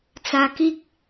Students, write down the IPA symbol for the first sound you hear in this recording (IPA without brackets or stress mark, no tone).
t͡s